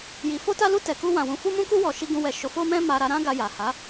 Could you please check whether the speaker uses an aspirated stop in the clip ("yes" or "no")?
no